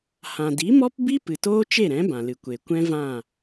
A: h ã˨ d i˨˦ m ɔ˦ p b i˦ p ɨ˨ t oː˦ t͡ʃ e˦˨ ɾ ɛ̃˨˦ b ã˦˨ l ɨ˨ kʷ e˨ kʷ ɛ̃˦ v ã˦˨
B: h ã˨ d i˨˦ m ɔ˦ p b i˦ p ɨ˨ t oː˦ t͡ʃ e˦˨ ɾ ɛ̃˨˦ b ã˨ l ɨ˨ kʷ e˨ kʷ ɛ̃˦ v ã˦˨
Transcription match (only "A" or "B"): B